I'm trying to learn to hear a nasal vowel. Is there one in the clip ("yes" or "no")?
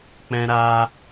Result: yes